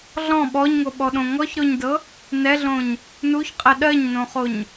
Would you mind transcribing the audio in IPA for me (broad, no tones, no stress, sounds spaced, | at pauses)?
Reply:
ɮ ɔ̃ ɓ ɔ ɲ ŋ o ɓ ɔ ɗ õ ŋ ɔ ç ɾ o ɲ d ɤ | n ɛ ɮ õ ɲ | n u ç qʼ ɛ ɗ ɜ ɲ n õ χ o ɲ